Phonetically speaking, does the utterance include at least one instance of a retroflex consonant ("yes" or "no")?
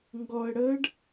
yes